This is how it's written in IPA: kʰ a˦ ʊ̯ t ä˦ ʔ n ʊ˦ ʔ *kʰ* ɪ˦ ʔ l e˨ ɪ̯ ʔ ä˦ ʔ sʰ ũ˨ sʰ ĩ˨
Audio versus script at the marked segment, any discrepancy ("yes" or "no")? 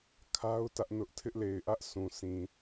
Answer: yes